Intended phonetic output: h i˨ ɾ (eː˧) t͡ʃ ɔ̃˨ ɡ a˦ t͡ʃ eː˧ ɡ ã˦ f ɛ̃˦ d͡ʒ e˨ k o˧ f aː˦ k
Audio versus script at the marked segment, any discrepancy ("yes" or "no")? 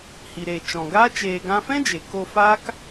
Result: yes